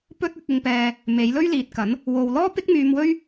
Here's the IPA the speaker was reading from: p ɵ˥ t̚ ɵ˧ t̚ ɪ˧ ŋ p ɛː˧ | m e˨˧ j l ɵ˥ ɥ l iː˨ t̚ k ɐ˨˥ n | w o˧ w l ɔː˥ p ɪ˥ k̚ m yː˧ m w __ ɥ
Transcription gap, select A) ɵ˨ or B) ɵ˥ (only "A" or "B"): B